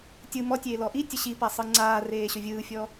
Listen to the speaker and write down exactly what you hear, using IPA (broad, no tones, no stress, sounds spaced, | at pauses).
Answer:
tʲ ɯ m ɔ tʲ eː l ɔ ʔ i tʲ ə ɕ i p a sˤ ɯ ŋ͡ǀ aː r eː ɕ ɵ vʲ ɯː fʲ ɔ